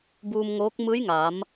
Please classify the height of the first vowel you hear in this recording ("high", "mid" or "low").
high